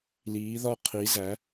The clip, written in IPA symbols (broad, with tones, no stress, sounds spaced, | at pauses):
l iː˩˧ ð ɒ˧˩ qʰ i˩˧ z æ˩˧